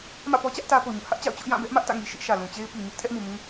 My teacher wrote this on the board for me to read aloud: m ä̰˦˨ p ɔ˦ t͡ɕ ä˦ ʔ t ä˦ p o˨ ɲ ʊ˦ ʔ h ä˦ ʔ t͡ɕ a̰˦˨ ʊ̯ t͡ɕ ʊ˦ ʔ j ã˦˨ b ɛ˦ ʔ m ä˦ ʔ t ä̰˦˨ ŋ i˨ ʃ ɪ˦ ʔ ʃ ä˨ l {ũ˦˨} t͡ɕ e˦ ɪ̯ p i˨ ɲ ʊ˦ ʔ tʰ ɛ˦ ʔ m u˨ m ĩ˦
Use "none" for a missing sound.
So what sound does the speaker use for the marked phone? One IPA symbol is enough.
ũ˨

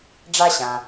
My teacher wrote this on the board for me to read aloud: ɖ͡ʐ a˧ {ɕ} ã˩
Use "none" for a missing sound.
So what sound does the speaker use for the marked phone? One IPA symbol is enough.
ɕ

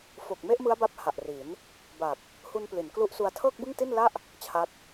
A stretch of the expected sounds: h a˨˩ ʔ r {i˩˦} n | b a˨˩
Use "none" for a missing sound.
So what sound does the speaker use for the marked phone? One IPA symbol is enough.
i˩˦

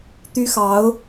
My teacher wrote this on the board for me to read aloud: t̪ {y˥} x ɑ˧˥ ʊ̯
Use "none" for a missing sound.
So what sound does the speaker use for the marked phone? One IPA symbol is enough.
y˥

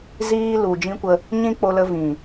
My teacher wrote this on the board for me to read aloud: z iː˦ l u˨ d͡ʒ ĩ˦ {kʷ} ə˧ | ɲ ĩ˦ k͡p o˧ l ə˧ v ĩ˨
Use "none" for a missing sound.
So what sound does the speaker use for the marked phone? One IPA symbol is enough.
kʷ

